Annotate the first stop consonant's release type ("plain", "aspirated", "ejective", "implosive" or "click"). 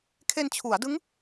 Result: aspirated